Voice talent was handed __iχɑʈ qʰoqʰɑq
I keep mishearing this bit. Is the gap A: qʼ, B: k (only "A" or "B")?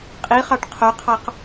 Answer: A